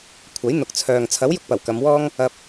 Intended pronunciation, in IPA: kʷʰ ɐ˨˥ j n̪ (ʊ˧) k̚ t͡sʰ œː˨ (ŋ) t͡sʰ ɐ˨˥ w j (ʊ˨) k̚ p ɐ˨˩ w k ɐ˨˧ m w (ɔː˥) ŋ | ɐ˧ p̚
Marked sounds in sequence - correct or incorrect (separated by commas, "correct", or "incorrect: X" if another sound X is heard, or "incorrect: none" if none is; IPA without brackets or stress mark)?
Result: incorrect: ʊ˨, correct, incorrect: ʊ˥, correct